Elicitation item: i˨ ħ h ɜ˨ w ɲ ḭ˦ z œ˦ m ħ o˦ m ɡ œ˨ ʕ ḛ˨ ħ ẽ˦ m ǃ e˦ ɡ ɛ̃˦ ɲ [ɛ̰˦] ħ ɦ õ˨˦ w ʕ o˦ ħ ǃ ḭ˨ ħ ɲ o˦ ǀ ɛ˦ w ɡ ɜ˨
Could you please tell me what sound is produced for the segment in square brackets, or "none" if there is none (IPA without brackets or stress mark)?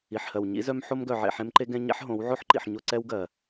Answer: ɛ̰˦